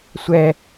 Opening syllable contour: high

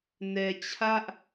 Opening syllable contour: low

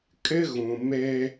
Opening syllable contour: high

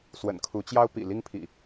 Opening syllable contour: low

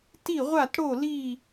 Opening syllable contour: falling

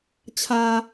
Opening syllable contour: low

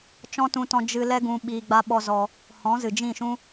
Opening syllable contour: high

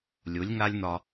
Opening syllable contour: rising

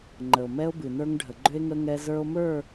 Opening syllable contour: low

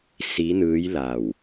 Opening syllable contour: rising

